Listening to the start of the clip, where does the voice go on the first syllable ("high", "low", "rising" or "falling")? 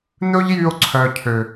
high